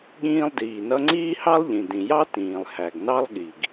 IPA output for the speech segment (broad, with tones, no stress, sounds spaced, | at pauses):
ɠ ĩː˦ lˠ d iː˩ n ʌ˦ ŋ͡ǀ iː˦ h ɑ˦ lˠ ʎ ĩ˩ d ĩ˩ j ɑ˦ t ĩː˩ lˠ h æ˩ ɡ n ɑ˦ lˠ ɠ i˩ ɡ